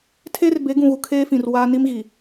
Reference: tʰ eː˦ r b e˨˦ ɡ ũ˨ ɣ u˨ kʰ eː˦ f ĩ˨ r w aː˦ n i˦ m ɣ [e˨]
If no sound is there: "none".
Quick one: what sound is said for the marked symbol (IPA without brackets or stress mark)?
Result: i˨